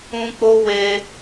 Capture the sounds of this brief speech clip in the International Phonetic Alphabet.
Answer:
ũ˦ k͡p o˦ w e˧

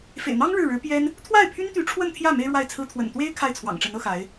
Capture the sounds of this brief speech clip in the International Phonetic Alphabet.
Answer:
f ḛ˨˩ ɪ̯ n̪ ɑ˥ ŋ ɻ ɻ̩˥˩ ɻ ɻ̩˧˥ p j ɛ˥ n | t̪ʰ w a˥˩ ɪ̯ pʰ y˥ n t̪ y˧˥ ʈ͡ʂʰ w ə˥˧ n t̪ʰ j ä˥˩ m e˥ ɪ̯ ɻ w a˥˩ ɪ̯ t͡sʰ ɹ̩˥ t̪ʰ w ə̰˨˩ n t̪ w e˥ ɪ̯ kʰ a˥˩ ɪ̯ t͡sʰ w ɑ̰˨˩ ŋ ʈ͡ʂ ə˧˥ n ɤ˧˥ x a˧˥ ɪ̯

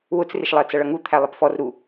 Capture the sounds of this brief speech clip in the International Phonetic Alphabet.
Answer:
w ʊ t͡s r ɪ ʃ lˠ ɜ t͡s ʌ ɭ ʌ ŋ u t̪ʰ æ lˠ ɪ p f ɔ r ɾ u

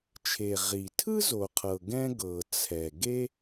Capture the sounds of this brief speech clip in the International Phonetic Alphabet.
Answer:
t͡ʃʰ e˩ ʁ i˩ tʰ ɯ˥ z o˩ qʰ ɤ˩ ɡ ɛ̃˥ ɡ ɤ˩ t͡sʰ ɛ˩ ɡ e˥

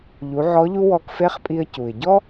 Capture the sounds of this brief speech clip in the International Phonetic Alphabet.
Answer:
ʎ u˩˧ ʕ ɔ˧˥ ʎ u˥ w ɔ˧ k f e˧˥ χ pʼ i˧ ə̯ c u˩ ɪ̯ ɟ ɔ˥

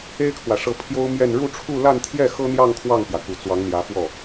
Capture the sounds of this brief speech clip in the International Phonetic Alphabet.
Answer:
e˥ ɪ̯ kʰ w ä˨ ʂ ɤ˧˥ pʰ j o˥ ʊ̯ m j ɛ˥˧ n ɻ u˥˧ ʈ͡ʂʰ u˥˧ l a˥˧ n t̪ʰ j ɛ˥˩ x ɤ˥ n̪ j ɑ˥˧ ŋ kʰ w ɑ˥˩ ŋ p j ä˩ k u˨˩ t͡s w ɑ˧˥ ŋ n̪ j ä˧˥ f w ɔ˥˩

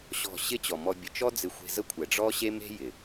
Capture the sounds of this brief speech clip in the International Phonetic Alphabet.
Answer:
ɕ ɔ̤˦˨ ɕ ɪ˦ t͡ɕ ɔ˨ m ɔ˧ bʲ ə˨ t͡ʃ ɔ˦ d͡z ɪ˧ xʷ e̤˧ z ə˦ kʷʰ ɛ˨ ɖ͡ʐ ɔ˦ ɕ e˦ m e̤˦ j ɪ˨

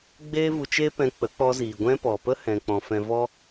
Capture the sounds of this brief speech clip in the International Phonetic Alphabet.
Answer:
ɡ͡b eː˦ v u˧ t͡ʃ eː˦ p ɛ̃˧ k͡p ə˨˦ k͡p ɔ˧ z iː˨ ɡʷ ɛ̃˦ p ɔ˨ p ə˦ h ɛ̃˨ k͡p ɔ̃˨ f ɛ̃˧ v ɔ˦

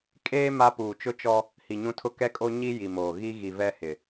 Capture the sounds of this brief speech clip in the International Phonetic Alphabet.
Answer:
kʼ eː˦ m a˦ p uː˨ t͡ʃ ʊ˦ t͡ʃ ɔ˦ | h i˨ ɲ ũ˦ tʰ ʊ˦ k ɛ˦ kʼ o˦ ɲ i˦ j i˨ m oː˨ ɣ i˦ ɣ i˨ v ɛ˦ h ɪ˨

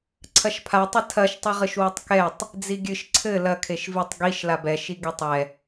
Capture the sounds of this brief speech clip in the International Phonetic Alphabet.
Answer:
ǀʰ ɐ ʃ pʰ a tˤ ɘ tʰ ɐ ʃ tˤ i ʁ ɨ ʃ w i tˤ k ɛ tˤ | d͡z i ɡʲ ɨ ʃ ǀʰ ɘ l ɐ kʰ e ʃ v i tˤ ɡ i ʃ l a b ɛ ʃ i ɡ e tˤ ɛ

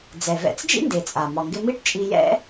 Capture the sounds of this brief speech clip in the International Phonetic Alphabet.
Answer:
d͡z ɛ˩ v ɛ̰˧ t͡s d͡ʒ ḭ˥ n d e˩ t͡sʼ a˩ m ɒ˩ ŋ ɡ ɪ˧ m i˥ ʈ t͡ʃʼ i˧ j ɛ̰˥

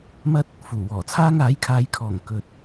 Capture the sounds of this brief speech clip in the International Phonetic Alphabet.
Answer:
m ɐ˥ t̚ | f uː˨˩ w ɔː˨˩ t͡sʰ aː˥ ŋ aː˨˥ j kʰ aː˨˧ j kʰ ɔː˨˩ ŋ k ɵ˨ t̚

